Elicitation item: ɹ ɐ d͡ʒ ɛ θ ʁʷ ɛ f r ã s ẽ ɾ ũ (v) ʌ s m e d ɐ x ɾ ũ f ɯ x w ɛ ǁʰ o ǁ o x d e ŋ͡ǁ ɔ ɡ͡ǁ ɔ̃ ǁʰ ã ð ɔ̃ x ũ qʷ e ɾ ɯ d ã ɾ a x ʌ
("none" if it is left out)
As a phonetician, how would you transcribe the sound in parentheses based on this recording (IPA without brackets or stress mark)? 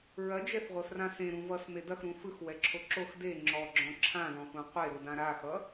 v